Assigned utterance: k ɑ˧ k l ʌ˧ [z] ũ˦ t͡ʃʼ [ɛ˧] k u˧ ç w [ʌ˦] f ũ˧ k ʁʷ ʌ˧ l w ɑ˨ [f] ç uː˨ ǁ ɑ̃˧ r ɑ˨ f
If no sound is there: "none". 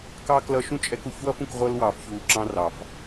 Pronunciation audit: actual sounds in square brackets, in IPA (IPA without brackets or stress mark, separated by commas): ʃ, ɛ˧, ʌ˦, f